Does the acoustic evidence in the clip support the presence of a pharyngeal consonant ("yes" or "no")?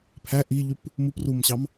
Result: no